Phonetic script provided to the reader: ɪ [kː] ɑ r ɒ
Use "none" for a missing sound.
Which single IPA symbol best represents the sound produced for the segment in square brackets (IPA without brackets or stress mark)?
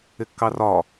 kː